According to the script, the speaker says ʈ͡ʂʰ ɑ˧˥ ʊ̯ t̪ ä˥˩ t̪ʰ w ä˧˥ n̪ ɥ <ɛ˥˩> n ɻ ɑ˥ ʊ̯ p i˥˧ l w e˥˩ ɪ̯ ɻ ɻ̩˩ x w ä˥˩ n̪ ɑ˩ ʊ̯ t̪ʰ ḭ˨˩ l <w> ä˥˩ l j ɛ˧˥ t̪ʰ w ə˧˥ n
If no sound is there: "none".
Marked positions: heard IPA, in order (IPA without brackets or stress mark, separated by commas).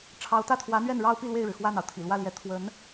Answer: ɛ˥˩, w